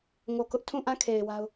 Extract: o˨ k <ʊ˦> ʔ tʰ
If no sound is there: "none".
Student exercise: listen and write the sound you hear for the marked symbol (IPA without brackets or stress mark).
ʊ˦